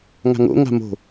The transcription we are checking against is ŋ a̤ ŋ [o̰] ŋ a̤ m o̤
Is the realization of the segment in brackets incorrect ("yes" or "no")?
no